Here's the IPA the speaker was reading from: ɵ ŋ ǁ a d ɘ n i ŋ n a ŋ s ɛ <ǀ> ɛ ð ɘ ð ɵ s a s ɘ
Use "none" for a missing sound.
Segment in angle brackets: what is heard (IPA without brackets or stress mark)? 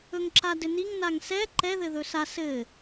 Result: ǃ